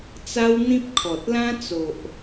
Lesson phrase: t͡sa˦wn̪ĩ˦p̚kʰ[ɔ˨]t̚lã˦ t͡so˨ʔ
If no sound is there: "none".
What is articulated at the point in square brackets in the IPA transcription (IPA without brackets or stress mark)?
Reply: ɔ˨